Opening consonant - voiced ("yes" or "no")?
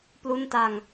no